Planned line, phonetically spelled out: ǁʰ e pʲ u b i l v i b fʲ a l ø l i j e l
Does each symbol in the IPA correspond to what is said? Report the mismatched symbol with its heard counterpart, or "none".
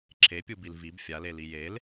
ø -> e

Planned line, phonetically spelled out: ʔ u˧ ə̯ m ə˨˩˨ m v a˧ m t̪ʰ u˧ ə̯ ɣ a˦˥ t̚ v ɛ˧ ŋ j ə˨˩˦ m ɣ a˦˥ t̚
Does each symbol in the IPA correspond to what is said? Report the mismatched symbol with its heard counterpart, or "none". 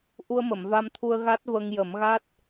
ɛ˧ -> ə˧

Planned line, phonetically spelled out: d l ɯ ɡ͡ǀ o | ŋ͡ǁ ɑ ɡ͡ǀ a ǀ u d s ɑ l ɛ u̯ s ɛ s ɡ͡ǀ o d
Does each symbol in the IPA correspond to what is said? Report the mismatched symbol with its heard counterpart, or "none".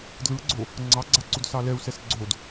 ŋ͡ǁ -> ŋ͡ǀ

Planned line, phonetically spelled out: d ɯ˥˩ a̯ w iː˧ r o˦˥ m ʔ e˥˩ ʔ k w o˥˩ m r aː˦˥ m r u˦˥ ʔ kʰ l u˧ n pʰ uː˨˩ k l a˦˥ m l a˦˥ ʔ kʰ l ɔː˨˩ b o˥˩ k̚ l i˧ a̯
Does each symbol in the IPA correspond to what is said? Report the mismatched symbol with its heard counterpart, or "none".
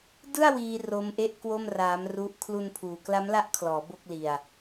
ɔː˨˩ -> ɔː˩˦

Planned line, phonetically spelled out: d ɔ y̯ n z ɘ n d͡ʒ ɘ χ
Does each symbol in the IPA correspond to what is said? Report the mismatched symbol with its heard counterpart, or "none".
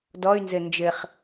none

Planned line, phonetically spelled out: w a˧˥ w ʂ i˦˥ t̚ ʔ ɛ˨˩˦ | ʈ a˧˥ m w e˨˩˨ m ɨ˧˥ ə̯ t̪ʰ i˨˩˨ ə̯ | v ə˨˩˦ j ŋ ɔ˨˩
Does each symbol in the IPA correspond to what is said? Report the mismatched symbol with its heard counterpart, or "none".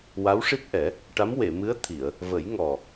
none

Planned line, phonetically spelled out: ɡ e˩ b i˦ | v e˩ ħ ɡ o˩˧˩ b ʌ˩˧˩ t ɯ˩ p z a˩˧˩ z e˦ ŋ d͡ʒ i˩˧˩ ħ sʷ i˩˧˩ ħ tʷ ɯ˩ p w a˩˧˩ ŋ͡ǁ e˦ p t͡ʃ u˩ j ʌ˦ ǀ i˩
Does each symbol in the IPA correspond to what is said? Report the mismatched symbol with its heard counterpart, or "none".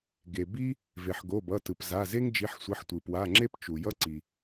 none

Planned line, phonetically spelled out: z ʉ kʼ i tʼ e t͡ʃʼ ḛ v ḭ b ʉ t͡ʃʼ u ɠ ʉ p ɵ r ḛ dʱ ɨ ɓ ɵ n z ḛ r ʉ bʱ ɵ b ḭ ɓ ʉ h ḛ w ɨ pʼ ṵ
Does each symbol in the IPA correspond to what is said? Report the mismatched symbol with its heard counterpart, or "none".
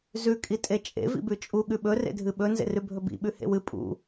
p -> ɓ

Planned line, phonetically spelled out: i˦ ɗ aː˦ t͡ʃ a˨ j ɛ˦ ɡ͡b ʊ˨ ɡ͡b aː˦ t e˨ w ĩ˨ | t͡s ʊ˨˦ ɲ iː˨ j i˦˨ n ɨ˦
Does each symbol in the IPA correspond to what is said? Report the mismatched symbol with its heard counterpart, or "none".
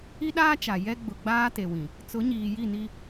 ɨ˦ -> i˦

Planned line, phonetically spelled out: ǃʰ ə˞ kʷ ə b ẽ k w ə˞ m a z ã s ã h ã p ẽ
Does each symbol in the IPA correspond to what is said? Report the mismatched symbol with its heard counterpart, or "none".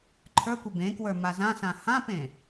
none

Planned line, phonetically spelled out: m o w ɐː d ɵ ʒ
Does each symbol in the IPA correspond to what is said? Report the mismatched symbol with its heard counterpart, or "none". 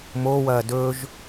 none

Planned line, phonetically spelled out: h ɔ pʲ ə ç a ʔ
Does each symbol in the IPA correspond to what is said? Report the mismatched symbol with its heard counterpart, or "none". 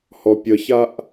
none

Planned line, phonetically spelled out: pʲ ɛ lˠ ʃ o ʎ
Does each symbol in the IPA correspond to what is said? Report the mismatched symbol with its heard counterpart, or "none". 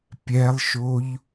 none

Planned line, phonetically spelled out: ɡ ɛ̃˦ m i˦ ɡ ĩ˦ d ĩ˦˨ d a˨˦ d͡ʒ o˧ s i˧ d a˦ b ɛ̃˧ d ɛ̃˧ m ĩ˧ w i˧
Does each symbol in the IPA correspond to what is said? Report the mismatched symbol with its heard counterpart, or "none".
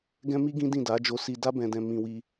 none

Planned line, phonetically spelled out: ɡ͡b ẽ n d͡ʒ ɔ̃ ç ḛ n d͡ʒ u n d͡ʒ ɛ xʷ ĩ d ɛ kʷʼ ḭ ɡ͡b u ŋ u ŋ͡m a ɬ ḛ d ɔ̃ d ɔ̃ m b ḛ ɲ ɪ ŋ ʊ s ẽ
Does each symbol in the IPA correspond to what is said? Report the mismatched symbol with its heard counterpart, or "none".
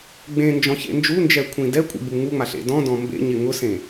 xʷ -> kʷʰ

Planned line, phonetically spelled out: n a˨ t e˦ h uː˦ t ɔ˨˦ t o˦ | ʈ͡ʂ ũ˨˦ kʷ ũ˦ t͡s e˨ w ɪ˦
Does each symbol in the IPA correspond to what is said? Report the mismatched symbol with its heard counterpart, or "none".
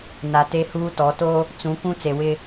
ʈ͡ʂ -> t͡s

